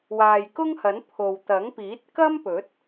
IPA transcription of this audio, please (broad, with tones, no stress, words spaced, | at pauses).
waː˨jkʊ˥ŋhɐ˨˥n pʰo˨w t̪ɐ˨˥ŋpiː˨˥t̚ kɐ˥mpɵ˨˥t̚